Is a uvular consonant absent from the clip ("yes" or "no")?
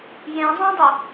yes